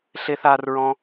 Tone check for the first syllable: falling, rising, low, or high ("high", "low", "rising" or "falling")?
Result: high